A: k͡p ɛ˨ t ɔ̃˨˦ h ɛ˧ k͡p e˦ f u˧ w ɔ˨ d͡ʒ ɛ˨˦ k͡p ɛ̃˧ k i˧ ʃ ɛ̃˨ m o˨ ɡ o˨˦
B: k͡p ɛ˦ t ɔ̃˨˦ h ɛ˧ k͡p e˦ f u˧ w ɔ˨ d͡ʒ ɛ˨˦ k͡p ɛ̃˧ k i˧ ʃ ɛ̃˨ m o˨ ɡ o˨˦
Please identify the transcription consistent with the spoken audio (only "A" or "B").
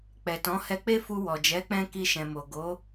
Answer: A